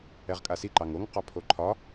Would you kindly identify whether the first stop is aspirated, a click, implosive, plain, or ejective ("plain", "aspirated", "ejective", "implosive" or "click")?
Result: ejective